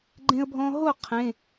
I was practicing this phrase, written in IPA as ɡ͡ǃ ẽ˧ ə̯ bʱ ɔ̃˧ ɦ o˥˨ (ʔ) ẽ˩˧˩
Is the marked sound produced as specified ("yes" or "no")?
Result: no